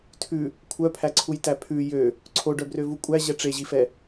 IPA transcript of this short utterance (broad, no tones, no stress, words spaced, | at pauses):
tʰʉ | kʷʰœpʰæǀʰujtæ pʰʉ jø | ǀʰoɖœbrøvu kʷʼæʑɛ ʈ͡ʂeʑifɛ